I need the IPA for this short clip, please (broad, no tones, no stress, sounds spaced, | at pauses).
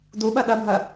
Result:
d u ɓ ɜ ɗ ɜ bʱ ɜ